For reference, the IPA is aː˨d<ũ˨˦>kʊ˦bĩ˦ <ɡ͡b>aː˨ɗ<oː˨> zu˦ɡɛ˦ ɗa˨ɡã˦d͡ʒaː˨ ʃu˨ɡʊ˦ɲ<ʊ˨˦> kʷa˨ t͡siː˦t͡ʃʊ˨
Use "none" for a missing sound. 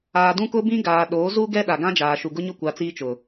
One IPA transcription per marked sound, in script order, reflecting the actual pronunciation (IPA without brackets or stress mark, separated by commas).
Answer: ũ˦, ɡ, oː˨˦, ʊ˦